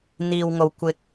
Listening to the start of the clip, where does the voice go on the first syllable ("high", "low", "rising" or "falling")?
low